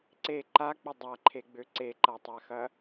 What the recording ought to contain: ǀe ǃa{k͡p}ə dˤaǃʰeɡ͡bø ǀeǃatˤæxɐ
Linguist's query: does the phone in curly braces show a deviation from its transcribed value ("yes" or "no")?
no